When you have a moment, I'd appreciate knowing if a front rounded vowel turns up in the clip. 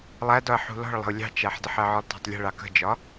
no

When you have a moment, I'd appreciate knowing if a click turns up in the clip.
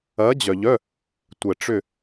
no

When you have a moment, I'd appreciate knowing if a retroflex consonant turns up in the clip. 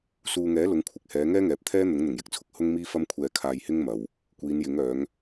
no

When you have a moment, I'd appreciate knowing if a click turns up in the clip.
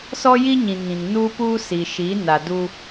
no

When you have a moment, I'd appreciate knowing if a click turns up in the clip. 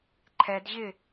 yes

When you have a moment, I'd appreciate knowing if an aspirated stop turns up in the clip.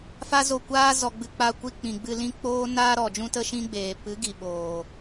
no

